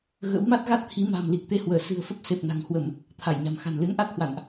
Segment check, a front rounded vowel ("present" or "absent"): absent